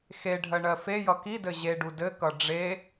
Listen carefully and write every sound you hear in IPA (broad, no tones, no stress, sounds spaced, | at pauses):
x e ɖʱ ɜ ɳ ɜ f e j ʌ k i d ɘ ʑ e ɖ u d ɘ k ʌ ɖ͡ʐ e